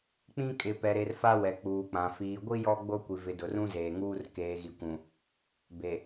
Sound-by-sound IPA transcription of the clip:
k͡p ĩ˦ kʼ ɪ˨ p ɛ˨ ɾ e˨ r f a˦ w ɛ˨ k͡p uː˨ k͡p ã˨ f iː˨ ɡʷ i˦ j ɔ˦ ɡ͡b o˦ kʷ i˨ v ɪ˨˦ d ʊ˨ r ũ˦ z eː˨ ŋ uː˦ r k eː˨ ɣ i˨ kʷ ũ˨ | b e˨

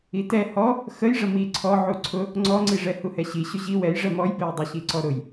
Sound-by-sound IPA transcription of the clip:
i t ɛ h ɔ | x ə j ʐ ə m i ǀʰ ɔ ʕ u ǀʰ ʊ | ŋ͡ǀ ɔ ŋ͡ǀ i ʐ ɛ h u h ɛ ɕ i ɕ ʊ ʑ i w ɛ j ʐ ɛ m ɔ j b ɛ j dˤ i ɕ i ǀ ɔ ɾ ʊ j

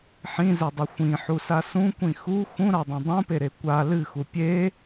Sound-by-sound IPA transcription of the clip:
ħ ĩ z e dˤ ɨ xʷ ĩ ħ u s a s ũ kʷ ĩ x u x ũ ɾ a dˤ ĩ dˤ ũ p e ɾ e kʷ a l ɨ x u pʲ e

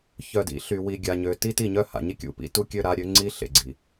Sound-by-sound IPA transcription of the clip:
ç œ˨ d ḭ˨ ɬ y˨ w i˨ ɡʲ a˨ ɲ ø˨ t i˦ t i˦˨ ɲ œ˦ h a̰˨ ɲ i˦ kʲ ṵ˨ p ḭ˦ t u˦ kʲ ø˦ ɾ a˨˦ ɾʲ ø˨˦ ŋ͡ǀ i˦ ɬ ḛ˨ ɡ͡ǀ i˨

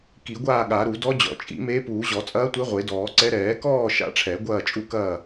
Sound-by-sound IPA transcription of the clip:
k i˨˩˦ ɡʷ aː˥˨ ɠ a˨˩˦ ɾ u˨˩˦ d ɔ˧˥ d͡ʑ ɔ̰˨˩˦ t͡ʃʼ ḭ˨˩˦ m eː˧˥ p uː˨˩˦ ʑ ɔ˨˩˦ t͡sʼ ɐː˧˥ tʷ e˧˥ ʁʷ e˨˩˦ d ɔː˨˩˦ ǀ ɛ˧˥ ɾ ɛː˨˩˦ k ɔː˥˨ ʃ a̰˧˥ ʈ͡ʂʰ ɛ˨˩˦ ɡʷ ɐː˥˨ t͡ʃʼ u˥˨ k ɐː˥˨

